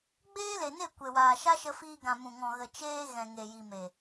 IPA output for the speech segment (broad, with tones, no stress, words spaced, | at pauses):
ɡ͡beː˦le˨ne˦˨ kʷe˨waː˨ʃa˦ ʃə˧fiː˧ɡã˨ mũ˨ŋɔ̃˨ ɣə˨t͡ʃeː˧ ɣɛ̃˨ŋe˨ji˨me˨